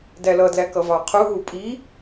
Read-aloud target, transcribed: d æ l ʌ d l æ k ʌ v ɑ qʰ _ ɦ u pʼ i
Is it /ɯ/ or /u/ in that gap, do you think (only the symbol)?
u